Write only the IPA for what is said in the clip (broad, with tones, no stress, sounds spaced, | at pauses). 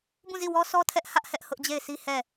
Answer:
b ũ˦˨ z i˦˨ w ɔ˦ s ɔ˦ tʰ ɛ˦ ʔ h ä˦ ʔ h ɛ˦ ʔ h ʊ˦ ʔ d͡ʑ e˦˨ ɪ̯ sʰ i˦ h ɛ˦˨